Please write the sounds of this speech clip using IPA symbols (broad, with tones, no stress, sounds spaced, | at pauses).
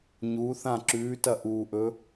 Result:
ɲ uː˩˧ θ ã˧˩ ǁ ʉː˩˧ t ɐ˧˩ ʔ uː˩ ʔ ɵ˩˧